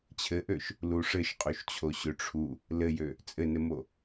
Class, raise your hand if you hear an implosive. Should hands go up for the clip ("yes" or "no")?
no